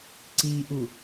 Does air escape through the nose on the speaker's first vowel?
no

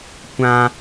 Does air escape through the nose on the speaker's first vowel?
yes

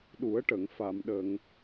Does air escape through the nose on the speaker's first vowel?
no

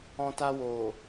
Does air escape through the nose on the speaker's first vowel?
yes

